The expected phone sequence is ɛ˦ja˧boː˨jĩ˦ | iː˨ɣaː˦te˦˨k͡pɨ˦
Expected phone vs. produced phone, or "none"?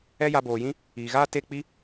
ɨ˦ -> i˦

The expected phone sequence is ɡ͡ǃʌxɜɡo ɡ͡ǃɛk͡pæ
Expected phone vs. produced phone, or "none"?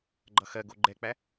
none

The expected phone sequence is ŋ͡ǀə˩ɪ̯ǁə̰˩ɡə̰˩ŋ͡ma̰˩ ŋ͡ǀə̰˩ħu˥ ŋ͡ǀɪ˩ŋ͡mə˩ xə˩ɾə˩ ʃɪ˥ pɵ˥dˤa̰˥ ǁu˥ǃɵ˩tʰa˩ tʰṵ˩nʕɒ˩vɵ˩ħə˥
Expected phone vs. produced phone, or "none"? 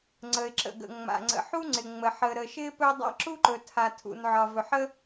x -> ħ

